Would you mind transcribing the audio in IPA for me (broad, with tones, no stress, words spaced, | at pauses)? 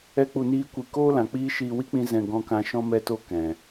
ɛ˦k͡pu˧niː˦kʷi˧ koː˦lã˨k͡piː˦ ʃiː˧wi˦k͡pĩ˧ zɛ̃˧ ɡɔ̃˧kã˧ ʃɔ̃˧mɛ˧to˧ kɛ̃˨